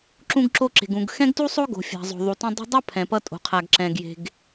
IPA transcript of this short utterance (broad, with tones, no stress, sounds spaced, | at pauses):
ǁ ũ˧ ɡ ǁ o˧ ǁ e̤˩ ɡ ũ˩ ɡ x ɛ̃˥ ɡ t u˥ sˤ o˥ ɡ o̤˩ fʲ a̤˩ zˤ o̤˩ ðˤ u˩ t ũ˧ dˤ ṳ˥ dˤ ʌ˥ pʰ ɛ̃˩ p ʌ˧ tʼ o̤˩ qʰ a˩ ɡ ǁ ɛ̃˩ ɡ j e̤˩ ɡ